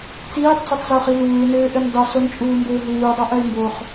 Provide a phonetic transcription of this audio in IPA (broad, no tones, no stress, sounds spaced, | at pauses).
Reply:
t͡s iː tˤ d͡z i tˤ z o χ i l uː ɪ̯ n ɘː ʔ ɘ n dˤ u s o n t͡ʃʼ uː m b ɘː ɦ uː dˤ o ʔ ɐ ɪ̯ m b o χ